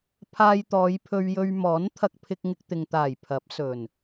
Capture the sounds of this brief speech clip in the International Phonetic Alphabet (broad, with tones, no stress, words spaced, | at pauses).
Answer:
pʰaː˧jt̪ɔː˨˧jpʰɵ˧ɥjɵ˧ɥ mɔː˨˥nt̪ʰɐ˧k̚pʰɪ˧k̚ŋɪ˧k̚ t̪ɪ˨ŋt̪aː˨˩j pʰɐ˨˥p̚sɵ˨˩n